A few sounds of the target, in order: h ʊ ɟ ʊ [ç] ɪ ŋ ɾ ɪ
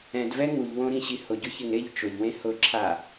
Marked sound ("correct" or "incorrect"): correct